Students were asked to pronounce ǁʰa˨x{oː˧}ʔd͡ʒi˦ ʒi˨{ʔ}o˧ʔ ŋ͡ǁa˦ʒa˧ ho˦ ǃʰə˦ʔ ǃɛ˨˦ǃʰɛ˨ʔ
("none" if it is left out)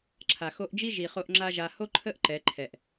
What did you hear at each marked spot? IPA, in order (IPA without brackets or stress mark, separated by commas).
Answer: o˧, χ